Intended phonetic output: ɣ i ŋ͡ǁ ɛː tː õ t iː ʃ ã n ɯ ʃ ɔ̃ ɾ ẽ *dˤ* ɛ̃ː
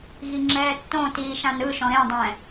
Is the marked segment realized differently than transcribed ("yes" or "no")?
no